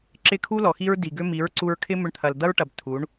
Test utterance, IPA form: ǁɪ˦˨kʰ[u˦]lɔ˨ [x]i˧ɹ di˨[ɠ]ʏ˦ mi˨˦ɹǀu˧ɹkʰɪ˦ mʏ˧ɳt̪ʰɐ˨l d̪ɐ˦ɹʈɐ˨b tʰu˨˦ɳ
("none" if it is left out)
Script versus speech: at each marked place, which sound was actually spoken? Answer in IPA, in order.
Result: u˦, x, ɡ

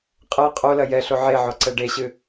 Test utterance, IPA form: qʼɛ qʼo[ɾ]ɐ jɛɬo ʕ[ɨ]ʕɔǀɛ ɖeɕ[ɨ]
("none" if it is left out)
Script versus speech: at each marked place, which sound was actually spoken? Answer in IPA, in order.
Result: l, e, ɨ

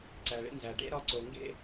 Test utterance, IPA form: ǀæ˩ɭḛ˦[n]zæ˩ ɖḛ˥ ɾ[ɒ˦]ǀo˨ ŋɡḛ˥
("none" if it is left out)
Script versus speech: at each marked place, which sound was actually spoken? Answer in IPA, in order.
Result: n, ɒ˦

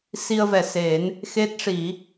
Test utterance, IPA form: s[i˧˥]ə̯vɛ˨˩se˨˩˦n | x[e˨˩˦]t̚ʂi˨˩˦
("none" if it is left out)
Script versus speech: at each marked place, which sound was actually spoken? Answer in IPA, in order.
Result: i˧, e˦˥

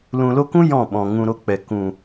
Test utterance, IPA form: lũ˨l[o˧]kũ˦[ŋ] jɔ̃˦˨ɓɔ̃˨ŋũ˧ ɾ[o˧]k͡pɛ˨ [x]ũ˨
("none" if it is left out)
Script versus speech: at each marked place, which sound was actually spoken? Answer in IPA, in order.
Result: o˧, none, o˧, k

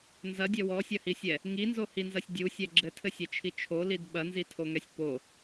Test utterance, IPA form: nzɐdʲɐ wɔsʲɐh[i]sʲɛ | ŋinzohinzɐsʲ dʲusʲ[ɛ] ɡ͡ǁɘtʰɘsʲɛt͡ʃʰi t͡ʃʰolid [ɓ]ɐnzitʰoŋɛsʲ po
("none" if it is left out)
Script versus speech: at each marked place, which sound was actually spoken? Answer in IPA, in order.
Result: i, ɛ, ɓ

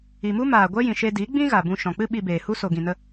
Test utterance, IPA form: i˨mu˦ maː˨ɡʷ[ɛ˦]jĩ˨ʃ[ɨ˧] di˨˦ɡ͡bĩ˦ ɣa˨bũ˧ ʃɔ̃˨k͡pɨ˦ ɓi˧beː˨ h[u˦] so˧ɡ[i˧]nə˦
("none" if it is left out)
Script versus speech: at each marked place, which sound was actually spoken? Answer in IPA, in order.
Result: ɛ˦, e˧, u˦, ĩ˧

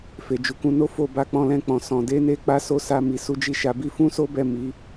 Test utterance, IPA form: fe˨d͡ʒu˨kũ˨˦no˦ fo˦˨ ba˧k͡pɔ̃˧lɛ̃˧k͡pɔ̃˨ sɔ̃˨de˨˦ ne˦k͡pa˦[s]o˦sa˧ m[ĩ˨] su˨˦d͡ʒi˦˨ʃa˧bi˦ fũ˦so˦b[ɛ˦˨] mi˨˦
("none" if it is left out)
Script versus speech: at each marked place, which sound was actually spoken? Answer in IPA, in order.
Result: s, i˨, ɛ˦˨

